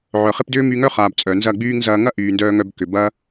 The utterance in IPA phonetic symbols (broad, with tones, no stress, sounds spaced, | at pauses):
ʕ œ˨ χ e˦ p d ʏː˦ m y˧ ŋ œ˦ χ aː˨ b t͡sʼ œ˨ n z ɐ˦˨ ɡ͡b yː˦ ŋ z ɐː˧ ŋ ɐ˦ ʔ yː˨ n d œː˧ ŋ œ˧ b k ʏ˨ b ɐ˦